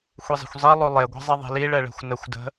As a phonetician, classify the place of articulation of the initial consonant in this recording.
velar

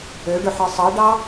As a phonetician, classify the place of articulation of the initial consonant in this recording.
retroflex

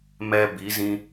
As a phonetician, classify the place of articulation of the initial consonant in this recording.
labial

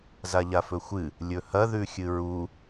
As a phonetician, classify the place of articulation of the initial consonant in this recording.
alveolar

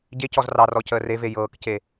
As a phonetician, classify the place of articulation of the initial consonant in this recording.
palatal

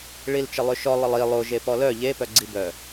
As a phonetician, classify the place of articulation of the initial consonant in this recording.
retroflex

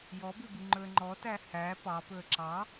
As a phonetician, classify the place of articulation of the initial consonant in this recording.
palatal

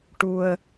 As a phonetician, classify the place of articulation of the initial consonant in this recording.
retroflex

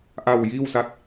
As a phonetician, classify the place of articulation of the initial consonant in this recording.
glottal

